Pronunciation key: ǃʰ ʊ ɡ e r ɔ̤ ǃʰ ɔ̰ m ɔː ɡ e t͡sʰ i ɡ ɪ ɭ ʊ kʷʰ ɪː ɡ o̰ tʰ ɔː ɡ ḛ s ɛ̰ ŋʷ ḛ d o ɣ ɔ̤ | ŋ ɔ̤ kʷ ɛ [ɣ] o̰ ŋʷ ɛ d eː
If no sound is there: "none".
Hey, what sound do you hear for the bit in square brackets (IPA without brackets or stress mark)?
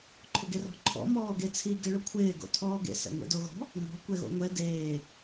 ɣ